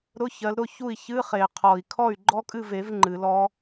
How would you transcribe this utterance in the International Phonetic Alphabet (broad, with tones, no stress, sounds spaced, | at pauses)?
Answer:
ɾ ʊ˧˥˧ ç ɜ˨˦ l ɾ ʊ˥˩ ç u˥˩ i̯ ç ɨ˧˥˧ χ e˨˩ qʰ ɔ˨˩ i̯ kʰ ɔ˥˩ y̯ ɡ͡ǃ ɔ˦˥ kʼ ɨ˥˩ v e˨˩˦ v ŋ͡ǃ ɨ˨˩˦ l ɔ˦˥